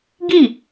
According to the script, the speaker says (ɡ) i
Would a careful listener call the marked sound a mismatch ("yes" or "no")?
no